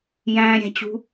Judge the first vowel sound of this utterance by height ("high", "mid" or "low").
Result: low